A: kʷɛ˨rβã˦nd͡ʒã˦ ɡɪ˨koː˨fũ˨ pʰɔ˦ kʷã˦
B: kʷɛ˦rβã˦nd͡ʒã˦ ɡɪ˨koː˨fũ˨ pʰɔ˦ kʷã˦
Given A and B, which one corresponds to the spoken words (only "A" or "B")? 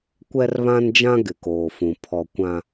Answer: B